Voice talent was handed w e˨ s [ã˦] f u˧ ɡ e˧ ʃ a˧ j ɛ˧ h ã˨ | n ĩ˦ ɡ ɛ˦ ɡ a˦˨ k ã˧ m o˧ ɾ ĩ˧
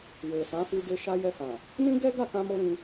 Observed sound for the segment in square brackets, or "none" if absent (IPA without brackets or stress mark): ã˨˦